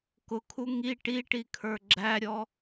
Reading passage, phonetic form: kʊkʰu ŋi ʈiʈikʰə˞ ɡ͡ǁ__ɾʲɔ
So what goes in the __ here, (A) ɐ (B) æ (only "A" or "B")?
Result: B